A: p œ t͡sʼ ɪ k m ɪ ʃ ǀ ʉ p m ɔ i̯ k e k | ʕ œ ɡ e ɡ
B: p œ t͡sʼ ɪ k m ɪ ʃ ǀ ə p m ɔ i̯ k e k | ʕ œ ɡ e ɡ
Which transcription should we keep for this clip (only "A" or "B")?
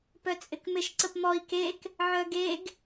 B